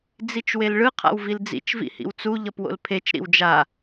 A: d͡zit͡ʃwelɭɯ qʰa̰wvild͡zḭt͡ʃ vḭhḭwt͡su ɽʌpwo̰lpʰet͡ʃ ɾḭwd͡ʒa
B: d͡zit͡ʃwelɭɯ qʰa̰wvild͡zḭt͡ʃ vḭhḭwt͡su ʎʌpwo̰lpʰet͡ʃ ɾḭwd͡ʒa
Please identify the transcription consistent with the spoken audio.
B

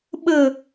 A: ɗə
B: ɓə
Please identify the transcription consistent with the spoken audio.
B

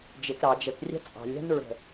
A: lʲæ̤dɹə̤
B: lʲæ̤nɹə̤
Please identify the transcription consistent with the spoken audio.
B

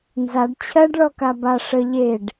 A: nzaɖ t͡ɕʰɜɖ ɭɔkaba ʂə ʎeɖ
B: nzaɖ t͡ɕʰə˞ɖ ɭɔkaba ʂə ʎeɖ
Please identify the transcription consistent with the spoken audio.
A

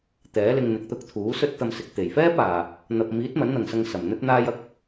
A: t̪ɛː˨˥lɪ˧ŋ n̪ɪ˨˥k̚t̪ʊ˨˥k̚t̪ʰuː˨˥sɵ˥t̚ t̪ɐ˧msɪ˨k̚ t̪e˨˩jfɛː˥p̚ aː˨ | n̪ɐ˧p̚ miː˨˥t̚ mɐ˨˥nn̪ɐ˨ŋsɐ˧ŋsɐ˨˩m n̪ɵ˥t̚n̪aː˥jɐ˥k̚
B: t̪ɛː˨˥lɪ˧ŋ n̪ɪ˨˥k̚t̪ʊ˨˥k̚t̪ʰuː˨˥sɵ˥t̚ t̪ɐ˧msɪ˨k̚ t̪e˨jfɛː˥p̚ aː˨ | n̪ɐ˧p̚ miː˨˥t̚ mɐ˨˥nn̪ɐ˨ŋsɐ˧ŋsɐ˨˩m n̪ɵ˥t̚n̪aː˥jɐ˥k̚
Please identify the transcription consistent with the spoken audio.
A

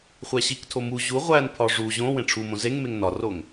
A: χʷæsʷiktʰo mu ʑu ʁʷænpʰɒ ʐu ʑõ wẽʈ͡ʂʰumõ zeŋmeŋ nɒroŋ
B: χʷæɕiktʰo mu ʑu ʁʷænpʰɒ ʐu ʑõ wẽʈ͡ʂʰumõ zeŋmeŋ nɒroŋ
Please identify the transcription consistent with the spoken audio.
B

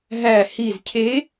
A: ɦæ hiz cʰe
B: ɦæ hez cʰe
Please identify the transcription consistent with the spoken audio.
A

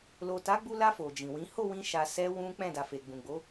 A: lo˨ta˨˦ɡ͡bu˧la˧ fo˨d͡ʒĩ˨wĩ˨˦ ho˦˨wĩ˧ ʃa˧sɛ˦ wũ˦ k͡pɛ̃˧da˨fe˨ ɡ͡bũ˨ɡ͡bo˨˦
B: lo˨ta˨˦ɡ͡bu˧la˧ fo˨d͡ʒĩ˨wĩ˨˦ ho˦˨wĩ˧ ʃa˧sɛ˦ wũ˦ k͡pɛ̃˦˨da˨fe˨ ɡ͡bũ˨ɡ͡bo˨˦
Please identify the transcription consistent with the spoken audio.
B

